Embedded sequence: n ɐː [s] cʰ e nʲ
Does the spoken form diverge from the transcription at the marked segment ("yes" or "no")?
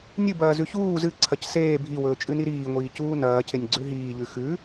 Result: yes